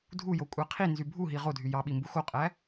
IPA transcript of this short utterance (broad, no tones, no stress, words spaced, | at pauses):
dʱujokʷʼæ qʰinzy bʱuɦi ʁodʱy jɑɓimbu xoqʼæ